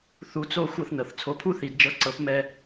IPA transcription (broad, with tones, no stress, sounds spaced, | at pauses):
θ u˧˥ t͡s o˥ xʷ ɤ˥ θ n ɤ˩ θ t͡sʰ o˧ pʰ u˥ θ i˩˧ d d͡ʒ ɤ˧˥ ǀ ɤ˧˥ p m ɛ˥